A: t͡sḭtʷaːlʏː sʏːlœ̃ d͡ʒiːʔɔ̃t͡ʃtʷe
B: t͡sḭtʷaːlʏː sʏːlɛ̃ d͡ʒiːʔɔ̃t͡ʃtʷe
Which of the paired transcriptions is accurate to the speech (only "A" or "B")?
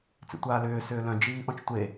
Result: A